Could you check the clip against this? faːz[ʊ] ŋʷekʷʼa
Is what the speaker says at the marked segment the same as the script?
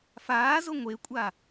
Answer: yes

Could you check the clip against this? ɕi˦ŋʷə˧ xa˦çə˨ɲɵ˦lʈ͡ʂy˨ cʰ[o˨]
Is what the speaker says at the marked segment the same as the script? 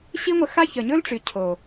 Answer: yes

